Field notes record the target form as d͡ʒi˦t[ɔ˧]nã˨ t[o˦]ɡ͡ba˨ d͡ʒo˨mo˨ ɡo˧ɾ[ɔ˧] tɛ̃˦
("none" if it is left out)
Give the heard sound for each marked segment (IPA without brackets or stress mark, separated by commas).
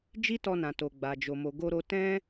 ɔ˧, o˨, o˧